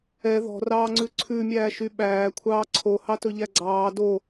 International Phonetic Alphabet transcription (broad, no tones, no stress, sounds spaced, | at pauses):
ɛ ð ɔ̤ r ɑː ŋ͡ǀ ʉ ǀʰ ʉ mʲ æː ʃ y ɓ æː kʷʰ ɑː ǀʰ o h ɑ t ɵ ʎ æ ɡ͡ǀ ɑː d o